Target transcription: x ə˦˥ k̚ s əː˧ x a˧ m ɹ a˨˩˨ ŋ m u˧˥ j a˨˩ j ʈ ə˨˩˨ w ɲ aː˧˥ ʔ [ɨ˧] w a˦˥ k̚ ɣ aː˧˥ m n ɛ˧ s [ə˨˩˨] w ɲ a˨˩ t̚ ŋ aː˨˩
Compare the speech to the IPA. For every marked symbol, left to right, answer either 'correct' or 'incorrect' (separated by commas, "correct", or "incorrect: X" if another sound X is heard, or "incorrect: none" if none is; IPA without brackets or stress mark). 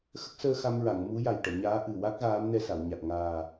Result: incorrect: ɨ˨˩, incorrect: a˨˩˨